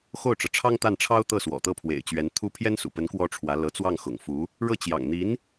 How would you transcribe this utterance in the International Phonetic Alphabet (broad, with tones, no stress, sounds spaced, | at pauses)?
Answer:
x o˥˩ ʊ̯ ʈ͡ʂ ɤ˩ ʈ͡ʂʰ ɑ˥ ŋ t̪ a˥˩ n ʈ͡ʂʰ ɑ˥ ʊ̯ t̪ ɤ˥˩ s w ɔ̰˨˩ t̪ ɤ˥˩ pʰ w ḛ˨˩ ɪ̯ t͡ɕ ɥ ɛ˧˥ n t̪ʰ u˥ pʰ j ɛ˥ n s ṵ˨˩ p ə˧˥ n k w ɔ˥ ʈ͡ʂʰ w ä˧˥ l ɤ˧˥ t͡s w ɑ˥˩ ŋ x ʊ̰˨˩ ŋ f u˧˥ | ɻ ɤ˥˩ t͡ɕ j ɑ̰˨˩ ŋ n̪ i˧˥ n